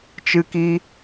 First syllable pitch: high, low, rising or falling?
high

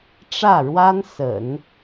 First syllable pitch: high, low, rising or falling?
falling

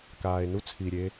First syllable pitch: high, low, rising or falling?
low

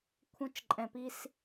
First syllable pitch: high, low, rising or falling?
high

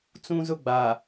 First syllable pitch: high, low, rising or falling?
high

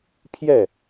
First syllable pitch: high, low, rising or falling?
falling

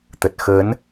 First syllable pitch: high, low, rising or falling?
low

